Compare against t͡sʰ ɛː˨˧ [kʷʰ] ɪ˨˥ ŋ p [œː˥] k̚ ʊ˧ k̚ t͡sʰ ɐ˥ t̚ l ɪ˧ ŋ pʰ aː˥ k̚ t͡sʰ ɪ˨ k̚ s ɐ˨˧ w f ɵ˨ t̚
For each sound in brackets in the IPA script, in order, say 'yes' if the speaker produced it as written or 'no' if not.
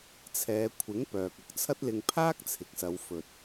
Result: yes, no

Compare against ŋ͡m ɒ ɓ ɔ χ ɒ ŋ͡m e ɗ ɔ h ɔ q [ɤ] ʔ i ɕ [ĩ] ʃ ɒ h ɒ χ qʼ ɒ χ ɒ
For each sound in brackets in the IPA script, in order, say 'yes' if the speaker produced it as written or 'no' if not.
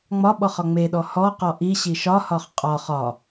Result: no, no

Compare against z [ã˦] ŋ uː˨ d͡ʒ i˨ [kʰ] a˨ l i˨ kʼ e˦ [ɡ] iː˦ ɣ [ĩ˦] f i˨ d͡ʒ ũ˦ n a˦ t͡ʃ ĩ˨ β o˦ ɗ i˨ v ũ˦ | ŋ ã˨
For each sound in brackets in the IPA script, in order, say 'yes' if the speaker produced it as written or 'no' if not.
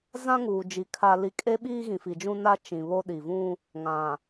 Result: yes, yes, no, no

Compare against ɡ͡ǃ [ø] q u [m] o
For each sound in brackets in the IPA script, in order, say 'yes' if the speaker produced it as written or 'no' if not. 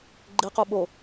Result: no, no

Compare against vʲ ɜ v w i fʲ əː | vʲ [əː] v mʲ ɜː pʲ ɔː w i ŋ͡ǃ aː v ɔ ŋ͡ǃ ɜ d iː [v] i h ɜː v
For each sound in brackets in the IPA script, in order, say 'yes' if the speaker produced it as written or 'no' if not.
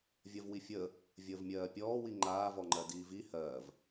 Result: yes, yes

